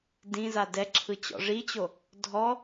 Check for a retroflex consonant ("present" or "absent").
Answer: present